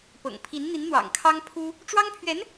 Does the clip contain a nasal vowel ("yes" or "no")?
no